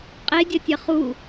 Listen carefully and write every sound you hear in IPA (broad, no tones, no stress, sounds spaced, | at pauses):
qʼ e dʲ ɐ tʲ ɐ χ u